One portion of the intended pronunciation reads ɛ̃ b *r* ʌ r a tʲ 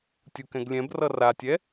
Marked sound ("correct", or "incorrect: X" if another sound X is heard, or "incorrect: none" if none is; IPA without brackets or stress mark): correct